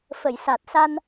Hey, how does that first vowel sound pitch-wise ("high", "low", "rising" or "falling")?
low